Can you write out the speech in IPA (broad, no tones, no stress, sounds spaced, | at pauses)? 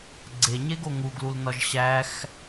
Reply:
ɡ͡ǀ e ɲ e ɡ o ŋ u ɡ l u l n ɒ ʒ ɕ æ x